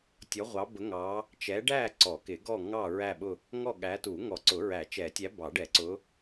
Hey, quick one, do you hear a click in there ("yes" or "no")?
yes